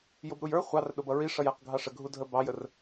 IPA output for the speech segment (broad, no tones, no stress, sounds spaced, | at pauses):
j ʊ b ɾ u j ə˞ χʷ ɑ r ɗ ʊ b ʌ ɹ i ʂ ʌ j æ q ɡʱ ɑ ʂ ə ɡʱ u dʱ ə b ɑ j ə r